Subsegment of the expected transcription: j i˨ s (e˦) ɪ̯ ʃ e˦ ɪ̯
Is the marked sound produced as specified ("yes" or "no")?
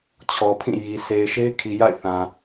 no